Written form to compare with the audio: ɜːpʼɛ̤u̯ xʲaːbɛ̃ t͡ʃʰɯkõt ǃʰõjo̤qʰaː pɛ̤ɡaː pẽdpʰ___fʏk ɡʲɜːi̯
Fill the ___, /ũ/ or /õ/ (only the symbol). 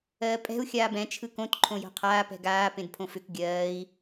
õ